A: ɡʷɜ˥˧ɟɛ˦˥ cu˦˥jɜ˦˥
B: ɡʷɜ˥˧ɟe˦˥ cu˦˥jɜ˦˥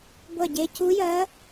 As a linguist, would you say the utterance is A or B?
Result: B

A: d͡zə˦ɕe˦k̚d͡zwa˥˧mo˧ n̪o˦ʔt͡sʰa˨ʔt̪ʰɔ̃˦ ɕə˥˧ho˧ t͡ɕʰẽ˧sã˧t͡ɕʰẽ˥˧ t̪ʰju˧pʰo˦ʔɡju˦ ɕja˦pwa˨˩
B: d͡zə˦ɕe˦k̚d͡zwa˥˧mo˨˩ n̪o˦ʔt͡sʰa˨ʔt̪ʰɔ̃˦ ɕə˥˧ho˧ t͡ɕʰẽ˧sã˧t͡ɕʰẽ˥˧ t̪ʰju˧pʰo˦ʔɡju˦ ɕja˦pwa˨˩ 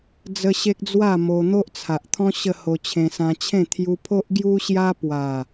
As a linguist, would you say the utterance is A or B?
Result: A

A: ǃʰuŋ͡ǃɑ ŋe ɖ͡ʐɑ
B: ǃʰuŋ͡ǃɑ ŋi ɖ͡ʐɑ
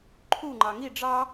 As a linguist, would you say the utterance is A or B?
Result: B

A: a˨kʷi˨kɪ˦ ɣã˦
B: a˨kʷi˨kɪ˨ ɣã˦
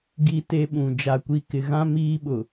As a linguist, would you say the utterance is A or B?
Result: B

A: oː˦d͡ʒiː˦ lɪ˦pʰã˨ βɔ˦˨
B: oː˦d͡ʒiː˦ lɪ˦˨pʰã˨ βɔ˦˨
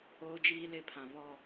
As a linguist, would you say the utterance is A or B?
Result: B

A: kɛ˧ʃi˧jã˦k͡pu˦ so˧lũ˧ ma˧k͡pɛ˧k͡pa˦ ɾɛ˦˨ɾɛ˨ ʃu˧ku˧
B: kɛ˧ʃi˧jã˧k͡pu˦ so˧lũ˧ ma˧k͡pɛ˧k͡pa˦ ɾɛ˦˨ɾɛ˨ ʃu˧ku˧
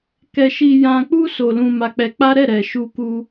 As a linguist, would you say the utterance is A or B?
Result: B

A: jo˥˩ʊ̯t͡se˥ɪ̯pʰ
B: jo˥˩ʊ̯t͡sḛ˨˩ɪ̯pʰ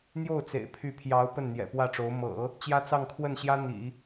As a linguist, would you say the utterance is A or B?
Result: B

